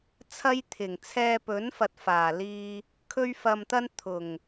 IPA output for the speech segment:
t͡sʰ ɐ˥ j t̪ʰ ɪ˨˩ ŋ t͡sʰ ɛː˧ p ɵ˨˥ n f ɐ˨ t̚ f aː˨˩ l iː˧ | kʰ ɵ˥ ɥ f ɐ˧ m t̪ ɐ˥ n t̪ʰ ʊ˨˩ ŋ

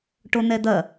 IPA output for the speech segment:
ʈ o n̪ ɛ d̪ ɐ

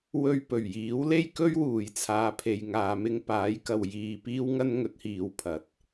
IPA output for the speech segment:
w ɵ˧ ɥ p ɵ˨˩ ɥ j iː˨˥ w l e˥ j k ɵ˥ ɥ w uː˨˩ j t͡sʰ aː˨˧ pʰ e˨ j ŋ aː˧ m ɪ˥ ŋ p aː˨˥ j k ɐ˨ w j iː˧ p iː˥ w ŋ ɐ˥ n ŋ ɵ˨˥ t̚ h iː˨ w pʰ ɐ˨˥ t̚

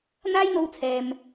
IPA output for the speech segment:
n̪ aː˥ j n̪ o˧ w t͡sʰ ɛː˨ m

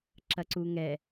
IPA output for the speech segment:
ǁ ɐ ǀ u ŋ ɛ

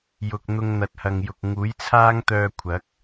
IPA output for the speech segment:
j ʊ˨ k̚ n̪ ʊ˧ ŋ n̪ ɐ˨ t̚ h ɐ˨ ŋ j ʊ˨ k̚ ŋ uː˨˥ j t͡sʰ aː˥ ŋ t̪ œː˧ kʷʰ ɐ˨˥ k̚

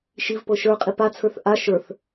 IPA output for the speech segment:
ʃ i v p ɤ ʃ ə˞ qʼ i p a t͡sʰ ə˞ θ ʔ a ʃ ə˞ θ

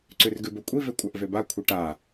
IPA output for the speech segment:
ǀ ʉ r ɡ ʉ b ɵ kʷʼ i v e kʷʼ a ʔ v e b a kʷʰ e ʈ a

